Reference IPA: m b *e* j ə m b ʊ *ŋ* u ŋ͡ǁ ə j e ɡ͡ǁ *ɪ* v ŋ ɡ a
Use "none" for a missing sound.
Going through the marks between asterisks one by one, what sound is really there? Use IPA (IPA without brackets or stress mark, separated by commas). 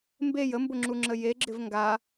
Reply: e, ŋ͡ǁ, ɪ